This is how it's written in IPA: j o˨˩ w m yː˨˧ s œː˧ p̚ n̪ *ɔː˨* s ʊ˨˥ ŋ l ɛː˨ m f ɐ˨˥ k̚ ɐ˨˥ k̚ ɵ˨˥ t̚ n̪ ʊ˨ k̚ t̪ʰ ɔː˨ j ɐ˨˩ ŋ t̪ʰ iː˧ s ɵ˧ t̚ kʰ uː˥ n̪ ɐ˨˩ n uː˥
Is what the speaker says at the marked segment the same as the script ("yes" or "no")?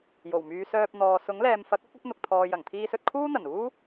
yes